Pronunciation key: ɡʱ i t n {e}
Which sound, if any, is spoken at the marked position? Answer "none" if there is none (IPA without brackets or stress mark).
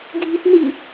i